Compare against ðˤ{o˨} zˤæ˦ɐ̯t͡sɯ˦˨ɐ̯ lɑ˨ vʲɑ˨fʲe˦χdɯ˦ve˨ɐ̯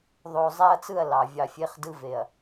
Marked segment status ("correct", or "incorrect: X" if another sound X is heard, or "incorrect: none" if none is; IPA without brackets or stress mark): correct